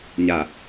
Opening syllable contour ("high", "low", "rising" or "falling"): low